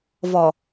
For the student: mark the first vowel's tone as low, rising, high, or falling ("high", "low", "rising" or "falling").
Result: low